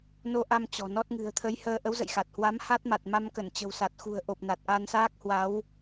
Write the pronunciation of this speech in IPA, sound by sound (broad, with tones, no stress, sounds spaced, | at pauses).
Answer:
n o˧ ʔ a˧ m t͡ɕ ɔ̤˨˩ n ɔ˦˥ t̚ ŋ ɨ̤˨˩ ə̯ t̪ʰ ə˨˦ j h əː˧ ʔ ə˨˦ w z ə̰˧˨ j x a˨˩ t̚ h w a˨˦ m h a˦˥ t̚ m a˨˩ t̚ m a˧ m k ə˧˩ n t͡ɕ ə̤˨˩ w s a˨˩ t̚ x ṳ˨˩ ə̯ ʔ o˨˩ p̚ n a˨˩ t̚ ʔ a˧ n s aː˦˥ k̚ h w a˨˦ w